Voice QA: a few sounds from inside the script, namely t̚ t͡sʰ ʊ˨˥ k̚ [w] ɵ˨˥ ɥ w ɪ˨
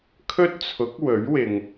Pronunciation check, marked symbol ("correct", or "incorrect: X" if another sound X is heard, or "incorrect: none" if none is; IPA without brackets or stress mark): correct